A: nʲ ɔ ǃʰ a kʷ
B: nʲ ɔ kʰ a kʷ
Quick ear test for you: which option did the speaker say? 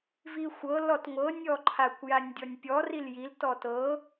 A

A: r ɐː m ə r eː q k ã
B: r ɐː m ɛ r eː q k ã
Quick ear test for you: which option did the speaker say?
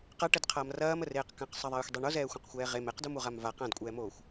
A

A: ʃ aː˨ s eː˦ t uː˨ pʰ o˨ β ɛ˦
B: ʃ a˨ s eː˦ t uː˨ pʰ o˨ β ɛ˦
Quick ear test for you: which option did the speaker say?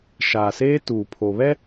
A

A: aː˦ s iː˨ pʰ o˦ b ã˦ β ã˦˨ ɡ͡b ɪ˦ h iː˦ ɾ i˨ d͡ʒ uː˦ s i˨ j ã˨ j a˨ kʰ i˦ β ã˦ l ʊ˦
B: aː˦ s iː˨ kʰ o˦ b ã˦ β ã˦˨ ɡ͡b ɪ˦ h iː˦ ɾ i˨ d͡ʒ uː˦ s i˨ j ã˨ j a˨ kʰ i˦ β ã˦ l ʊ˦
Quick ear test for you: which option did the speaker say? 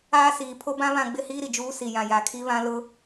A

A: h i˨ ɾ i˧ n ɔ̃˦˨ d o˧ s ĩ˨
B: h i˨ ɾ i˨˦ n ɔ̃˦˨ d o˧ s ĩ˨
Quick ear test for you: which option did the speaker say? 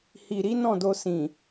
B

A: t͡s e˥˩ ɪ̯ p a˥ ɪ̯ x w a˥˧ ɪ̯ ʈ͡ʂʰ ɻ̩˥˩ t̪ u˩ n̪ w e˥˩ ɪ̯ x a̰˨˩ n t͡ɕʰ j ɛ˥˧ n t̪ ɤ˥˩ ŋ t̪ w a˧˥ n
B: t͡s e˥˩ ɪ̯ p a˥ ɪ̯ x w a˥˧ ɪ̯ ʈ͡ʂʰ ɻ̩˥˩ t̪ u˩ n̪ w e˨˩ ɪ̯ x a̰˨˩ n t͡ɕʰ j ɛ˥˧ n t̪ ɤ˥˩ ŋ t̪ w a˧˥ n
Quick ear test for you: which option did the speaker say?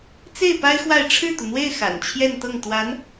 A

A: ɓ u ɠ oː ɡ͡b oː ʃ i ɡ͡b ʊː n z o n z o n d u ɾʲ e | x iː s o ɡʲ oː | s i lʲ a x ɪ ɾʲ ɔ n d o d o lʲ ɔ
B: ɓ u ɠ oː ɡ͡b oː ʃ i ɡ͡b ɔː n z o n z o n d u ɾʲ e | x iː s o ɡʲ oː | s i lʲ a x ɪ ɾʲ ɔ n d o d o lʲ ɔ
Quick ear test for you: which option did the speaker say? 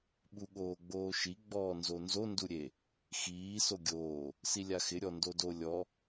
B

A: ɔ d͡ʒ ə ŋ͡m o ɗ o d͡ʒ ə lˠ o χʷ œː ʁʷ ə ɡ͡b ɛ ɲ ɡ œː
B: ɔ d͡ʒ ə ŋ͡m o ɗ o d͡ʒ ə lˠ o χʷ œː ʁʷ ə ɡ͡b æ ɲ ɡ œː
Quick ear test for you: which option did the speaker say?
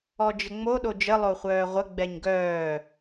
A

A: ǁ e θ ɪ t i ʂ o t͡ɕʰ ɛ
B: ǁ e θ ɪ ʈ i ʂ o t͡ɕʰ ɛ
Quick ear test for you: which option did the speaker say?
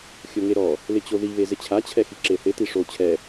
A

